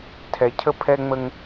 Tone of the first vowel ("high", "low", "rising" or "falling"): low